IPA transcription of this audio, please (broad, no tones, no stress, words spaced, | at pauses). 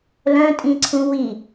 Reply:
lœ̃tʼĩǀʰũ wi